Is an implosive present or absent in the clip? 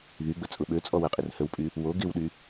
present